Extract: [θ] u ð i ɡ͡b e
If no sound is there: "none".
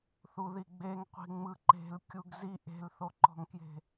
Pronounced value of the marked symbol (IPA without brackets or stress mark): θ